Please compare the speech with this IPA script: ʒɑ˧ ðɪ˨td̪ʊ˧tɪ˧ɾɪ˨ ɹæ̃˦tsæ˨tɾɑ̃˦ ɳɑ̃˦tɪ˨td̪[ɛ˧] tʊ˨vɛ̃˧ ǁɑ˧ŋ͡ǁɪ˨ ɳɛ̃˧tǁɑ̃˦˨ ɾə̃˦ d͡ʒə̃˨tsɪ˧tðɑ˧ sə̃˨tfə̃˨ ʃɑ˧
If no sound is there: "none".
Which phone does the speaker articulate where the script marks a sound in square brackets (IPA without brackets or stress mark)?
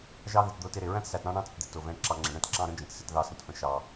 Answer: ɪ˧